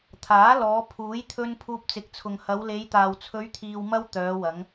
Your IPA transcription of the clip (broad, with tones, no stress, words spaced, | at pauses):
t̪ʰaː˨˥lɔː˨˧ pʰuː˨˥jt̪ʰɵ˧n pʰuː˧p̚t͡sɪ˨˥k̚t͡sʰʊ˨ŋ hɐ˨˧w le˨˧jt̪aː˨w t͡sʰɵ˨˧ɥt̪ʰiː˨wmɐ˧w t̪œː˨˧wɐ˨˧ŋ